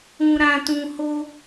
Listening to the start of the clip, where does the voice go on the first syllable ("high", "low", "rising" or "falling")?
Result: low